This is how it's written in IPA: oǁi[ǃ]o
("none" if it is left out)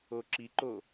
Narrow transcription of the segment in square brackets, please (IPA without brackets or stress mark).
ǃ